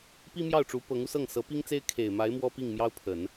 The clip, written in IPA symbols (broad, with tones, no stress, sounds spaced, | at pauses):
p i˥ m j ɑ˥˩ ʊ̯ ʈ͡ʂ u˧˥ p ɤ˧˥ ŋ u˧ s ɤ˥˩ ŋ s ɤ˧˥ p i˥ ŋ t͡s e˥ ɪ̯ kʰ e˨˩ ɪ̯ m a˧˥ ɪ̯ m w ɔ˥ p i˥˩ ŋ m j ɑ˥ ʊ̯ pʰ ə˨˩˦ n